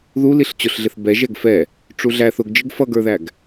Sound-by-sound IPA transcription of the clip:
ðu liɬt͡ɕʊɬɮɪθ bɛ ʒɛɡfɛ | ʈ͡ʂuɮæθ ʊɡd͡ʒɪɡ fʌɡə˞ðæɡ

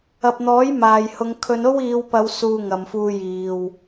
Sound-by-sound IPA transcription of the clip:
ɐ˨p̚n̪ɔː˨˥j maː˨jhʊ˨˧ŋ kʰɵ˨˧no˥wiː˨˧wpɐ˨˧w suː˧ŋɐ˨mfuː˧jiː˨w

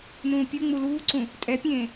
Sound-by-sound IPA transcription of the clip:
nũːpʲuŋ͡mu luːǀũ | tʼɛpʲẽː

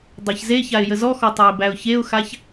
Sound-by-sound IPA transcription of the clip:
dˤaçzeçaɪ̯ jəzɔxɔ tˤaɪ̯bæʊ̯çeʊ̯xaç

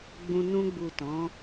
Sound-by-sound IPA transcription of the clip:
ɡ͡bũ˧ nũ˧ɡ͡bu˨ tɔ̃˨˦

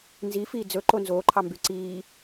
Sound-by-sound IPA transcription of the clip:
nzifiː d͡zɵǃo nzoːǃʰɑmby ǀiː

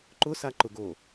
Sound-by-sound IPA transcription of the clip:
ǃʊsaǃʊɡo

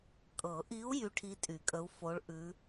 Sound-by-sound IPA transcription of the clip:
kʼɤ˨˩˦ʔi˧˥u̯ jy˧˥ʈʰi˧˥ tʼy˨˩˦kʼə˧˥u̯fo˧˥ɭ ʔʉ˧˥

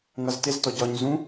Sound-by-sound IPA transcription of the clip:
ŋʌztɪz tɔɟɒɲ zũ

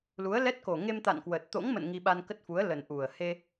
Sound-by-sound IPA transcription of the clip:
lu˨˦ə̯lɛ˦˥t̚ ko˨˩ŋe˧mt̪a̰˧˨n kwə˨˩t̚ t̪o̰˧˥ŋmə̰˧˨n ŋi˧ɓa˧nkə˦˥t̚fu˨˦ə̯ lə˨˩nʔu˨˩ə̯ he˧

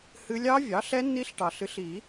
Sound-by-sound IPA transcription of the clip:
hɨ˦˥ lʲɑ˦˥vʲɑ˩˥ɬɛ˦˥ nːi˦˥ɬʈɑ˨˩˦ɬɨ˩˥ɬi˨˩˦

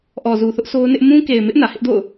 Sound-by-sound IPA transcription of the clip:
ʔɔ˨zu˨ θʊ˦ʔ so˦ʊ̯nɪ˦ʔ mũ˦ ke˨ɪ̯mɪ˦ʔ nä˨hɪ˦ʔdo̰˦˨ʊ̯

